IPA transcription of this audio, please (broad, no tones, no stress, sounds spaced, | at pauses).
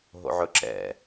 ɦ o̰ ʕ ɵ ǁ ɛ̰